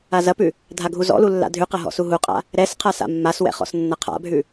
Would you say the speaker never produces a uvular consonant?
no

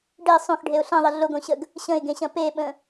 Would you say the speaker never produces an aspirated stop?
yes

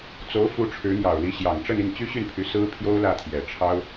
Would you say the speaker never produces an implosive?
yes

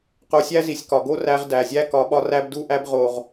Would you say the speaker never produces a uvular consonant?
no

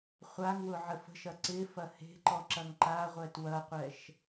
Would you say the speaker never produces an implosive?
yes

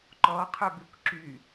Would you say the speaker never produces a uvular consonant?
no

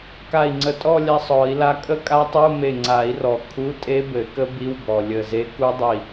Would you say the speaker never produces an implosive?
yes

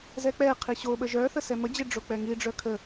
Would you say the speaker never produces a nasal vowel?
yes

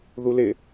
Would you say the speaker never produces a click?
yes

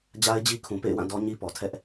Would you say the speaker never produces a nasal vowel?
no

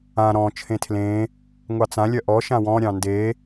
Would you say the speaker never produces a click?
yes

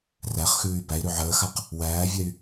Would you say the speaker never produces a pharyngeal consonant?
no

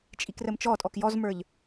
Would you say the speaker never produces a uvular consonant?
yes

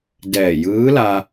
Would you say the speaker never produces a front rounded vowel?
yes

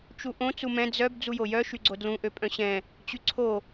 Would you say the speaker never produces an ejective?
no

